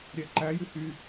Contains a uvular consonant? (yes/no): no